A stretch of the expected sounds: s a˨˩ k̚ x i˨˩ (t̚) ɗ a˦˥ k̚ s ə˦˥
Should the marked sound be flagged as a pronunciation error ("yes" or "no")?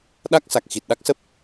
no